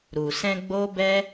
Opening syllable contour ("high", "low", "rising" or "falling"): low